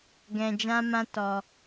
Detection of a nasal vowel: present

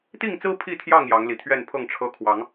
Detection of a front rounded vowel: absent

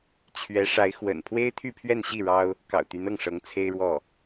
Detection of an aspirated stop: present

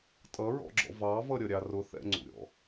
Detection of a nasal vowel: absent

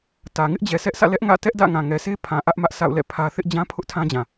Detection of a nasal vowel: present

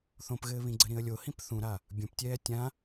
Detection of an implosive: absent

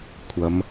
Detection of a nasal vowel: absent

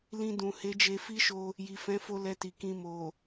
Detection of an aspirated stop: absent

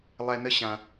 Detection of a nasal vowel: present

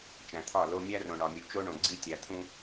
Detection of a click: present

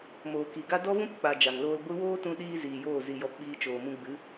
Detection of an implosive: present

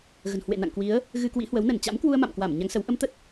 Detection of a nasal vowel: absent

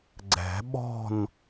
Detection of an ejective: absent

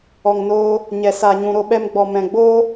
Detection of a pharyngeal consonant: absent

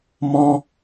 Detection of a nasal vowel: present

